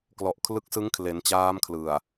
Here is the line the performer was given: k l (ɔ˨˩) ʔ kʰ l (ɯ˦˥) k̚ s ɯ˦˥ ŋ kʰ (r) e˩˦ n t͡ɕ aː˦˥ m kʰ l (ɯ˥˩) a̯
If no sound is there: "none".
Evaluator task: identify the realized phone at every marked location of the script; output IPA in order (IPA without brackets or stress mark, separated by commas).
ɔ˨˩, ɯ˦˥, l, ɯ˨˩